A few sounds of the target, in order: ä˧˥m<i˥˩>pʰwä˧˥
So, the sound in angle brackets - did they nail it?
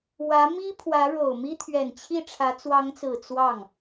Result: no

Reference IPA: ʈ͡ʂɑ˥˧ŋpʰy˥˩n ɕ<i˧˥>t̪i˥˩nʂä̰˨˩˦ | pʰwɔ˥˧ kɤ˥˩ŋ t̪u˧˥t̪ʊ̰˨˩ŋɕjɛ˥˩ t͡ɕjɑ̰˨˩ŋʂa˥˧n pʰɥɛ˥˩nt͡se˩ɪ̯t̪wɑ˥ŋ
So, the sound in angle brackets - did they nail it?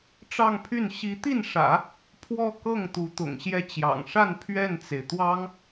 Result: yes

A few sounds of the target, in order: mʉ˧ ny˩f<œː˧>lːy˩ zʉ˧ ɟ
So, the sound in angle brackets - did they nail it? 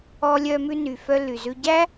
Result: no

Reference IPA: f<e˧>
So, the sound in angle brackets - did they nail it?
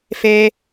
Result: yes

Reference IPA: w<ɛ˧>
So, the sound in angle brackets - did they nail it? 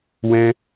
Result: no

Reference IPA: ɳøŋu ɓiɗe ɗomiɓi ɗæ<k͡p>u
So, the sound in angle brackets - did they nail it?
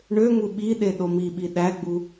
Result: no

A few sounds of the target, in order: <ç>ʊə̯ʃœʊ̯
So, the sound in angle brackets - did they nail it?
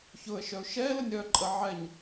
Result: yes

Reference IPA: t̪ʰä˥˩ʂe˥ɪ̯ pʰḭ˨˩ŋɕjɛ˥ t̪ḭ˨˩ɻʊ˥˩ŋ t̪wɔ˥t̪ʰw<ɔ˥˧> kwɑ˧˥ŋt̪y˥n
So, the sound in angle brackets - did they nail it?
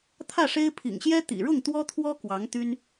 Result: no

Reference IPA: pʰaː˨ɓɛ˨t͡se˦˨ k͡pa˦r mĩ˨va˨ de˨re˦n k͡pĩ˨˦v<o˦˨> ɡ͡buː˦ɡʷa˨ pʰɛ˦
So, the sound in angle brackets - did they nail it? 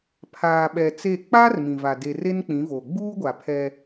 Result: no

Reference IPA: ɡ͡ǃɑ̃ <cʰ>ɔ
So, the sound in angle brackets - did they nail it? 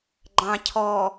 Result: yes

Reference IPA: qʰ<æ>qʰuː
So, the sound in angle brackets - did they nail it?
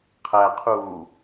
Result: yes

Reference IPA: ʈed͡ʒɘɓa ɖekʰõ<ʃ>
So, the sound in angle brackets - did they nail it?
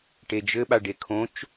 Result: no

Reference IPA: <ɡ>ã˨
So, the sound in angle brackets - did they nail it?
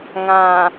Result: no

